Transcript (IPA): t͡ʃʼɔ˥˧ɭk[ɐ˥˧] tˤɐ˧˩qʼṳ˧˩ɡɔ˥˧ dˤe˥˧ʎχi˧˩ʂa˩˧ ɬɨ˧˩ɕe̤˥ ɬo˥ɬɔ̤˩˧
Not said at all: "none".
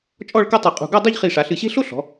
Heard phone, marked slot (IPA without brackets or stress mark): ɐ˥